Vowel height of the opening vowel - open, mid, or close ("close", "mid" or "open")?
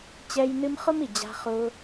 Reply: mid